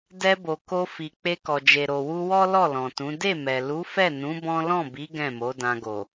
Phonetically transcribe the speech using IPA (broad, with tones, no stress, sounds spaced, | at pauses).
d ɛ˧ b o˨ k o˧ f i˨ k͡p e˧ k ɔ˨ d͡ʒ e˨ ɾ o˨ w u˧ w ɔ˦ l ɔ˦˨ l ɔ̃˨ t ũ˨˦ d e˦˨ m ɛ˨ l u˨˦ f ɛ˦˨ n ũ˨˦ b ɔ̃˦ l ɔ̃˦˨ b i˨˦ ɡ ɛ̃˦˨ m o˨˦ d ã˧ ɡ o˨